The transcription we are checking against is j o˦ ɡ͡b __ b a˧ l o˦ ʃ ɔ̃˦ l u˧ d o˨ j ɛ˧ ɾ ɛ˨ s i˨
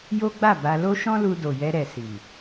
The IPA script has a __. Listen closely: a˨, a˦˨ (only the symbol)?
a˦˨